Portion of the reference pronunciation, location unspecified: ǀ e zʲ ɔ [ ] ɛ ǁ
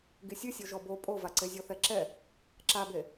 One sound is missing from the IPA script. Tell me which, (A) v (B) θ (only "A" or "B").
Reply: B